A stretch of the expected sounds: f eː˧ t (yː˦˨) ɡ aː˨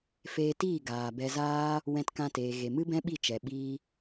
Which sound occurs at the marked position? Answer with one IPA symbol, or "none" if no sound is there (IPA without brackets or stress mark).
iː˦˨